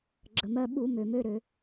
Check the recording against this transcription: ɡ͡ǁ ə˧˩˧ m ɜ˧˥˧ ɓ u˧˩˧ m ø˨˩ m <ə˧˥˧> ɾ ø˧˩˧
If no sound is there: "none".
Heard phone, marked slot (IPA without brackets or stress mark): ø˧˥˧